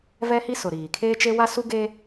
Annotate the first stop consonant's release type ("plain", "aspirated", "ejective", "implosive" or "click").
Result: aspirated